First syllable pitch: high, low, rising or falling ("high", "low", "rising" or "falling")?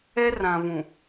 high